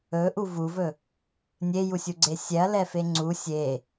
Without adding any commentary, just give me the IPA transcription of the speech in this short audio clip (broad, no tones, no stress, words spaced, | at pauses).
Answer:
ɵʔu vuvɵ | nʲejusʲuɡ͡ǀe sʲɛɐ̯lɛfe ŋ͡ǀu sʲe